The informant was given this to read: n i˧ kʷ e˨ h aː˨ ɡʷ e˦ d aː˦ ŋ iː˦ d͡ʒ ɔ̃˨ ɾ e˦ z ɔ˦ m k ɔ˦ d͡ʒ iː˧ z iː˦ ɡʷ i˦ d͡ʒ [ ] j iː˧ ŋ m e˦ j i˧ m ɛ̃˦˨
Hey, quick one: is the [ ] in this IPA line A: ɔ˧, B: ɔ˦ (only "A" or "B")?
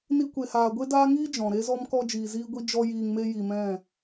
B